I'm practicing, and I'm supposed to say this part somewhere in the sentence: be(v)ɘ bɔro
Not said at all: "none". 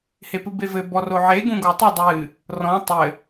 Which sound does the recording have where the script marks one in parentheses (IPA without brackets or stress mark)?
v